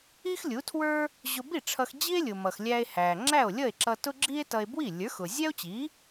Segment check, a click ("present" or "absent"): present